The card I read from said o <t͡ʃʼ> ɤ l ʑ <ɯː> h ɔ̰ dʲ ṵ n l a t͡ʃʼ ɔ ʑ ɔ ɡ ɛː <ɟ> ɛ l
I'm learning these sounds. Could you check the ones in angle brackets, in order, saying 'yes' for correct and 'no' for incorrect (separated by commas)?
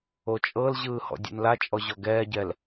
yes, yes, yes